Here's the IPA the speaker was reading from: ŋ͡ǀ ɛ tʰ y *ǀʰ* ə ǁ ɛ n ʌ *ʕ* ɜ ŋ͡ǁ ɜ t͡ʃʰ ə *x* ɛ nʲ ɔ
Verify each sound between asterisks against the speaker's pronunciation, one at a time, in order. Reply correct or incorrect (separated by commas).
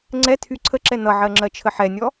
correct, correct, incorrect